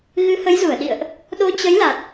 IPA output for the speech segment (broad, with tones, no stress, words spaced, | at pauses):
ɣɨ˨˦hə˨˦jzu˧˩ə̯ɗḭ˧˨ə̯ʔ | ɗo˨˦t͡ɕə˨˦jla˨˩t̚